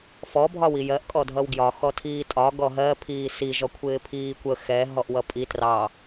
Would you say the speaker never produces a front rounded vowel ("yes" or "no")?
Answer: yes